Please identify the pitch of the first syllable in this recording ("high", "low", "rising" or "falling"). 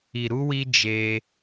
low